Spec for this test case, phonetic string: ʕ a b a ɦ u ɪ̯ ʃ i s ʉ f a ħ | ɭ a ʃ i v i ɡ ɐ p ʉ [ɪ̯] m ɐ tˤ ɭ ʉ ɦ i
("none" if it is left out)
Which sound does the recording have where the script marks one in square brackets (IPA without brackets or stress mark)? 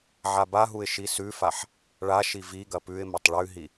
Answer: ɪ̯